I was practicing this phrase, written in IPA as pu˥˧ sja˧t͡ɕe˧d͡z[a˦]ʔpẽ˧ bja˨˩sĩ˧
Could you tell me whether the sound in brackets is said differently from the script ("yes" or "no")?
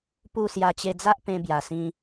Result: no